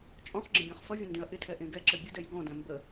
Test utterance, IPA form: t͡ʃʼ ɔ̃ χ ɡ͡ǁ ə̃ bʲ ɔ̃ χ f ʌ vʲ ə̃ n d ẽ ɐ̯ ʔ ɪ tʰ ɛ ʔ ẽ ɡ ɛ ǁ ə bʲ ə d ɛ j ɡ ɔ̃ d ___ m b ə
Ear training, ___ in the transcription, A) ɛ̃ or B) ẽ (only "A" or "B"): A